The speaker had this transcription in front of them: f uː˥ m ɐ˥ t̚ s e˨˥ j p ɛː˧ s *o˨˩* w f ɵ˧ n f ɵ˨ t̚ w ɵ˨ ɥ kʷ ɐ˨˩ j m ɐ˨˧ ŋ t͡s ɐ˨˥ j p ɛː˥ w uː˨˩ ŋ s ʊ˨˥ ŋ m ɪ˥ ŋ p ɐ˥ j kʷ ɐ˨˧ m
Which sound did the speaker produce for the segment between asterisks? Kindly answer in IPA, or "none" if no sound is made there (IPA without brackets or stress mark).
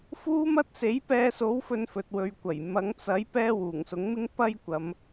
o˨˥